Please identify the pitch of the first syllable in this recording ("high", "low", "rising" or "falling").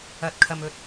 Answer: rising